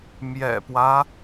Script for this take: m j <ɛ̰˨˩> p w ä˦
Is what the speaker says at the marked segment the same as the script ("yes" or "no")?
yes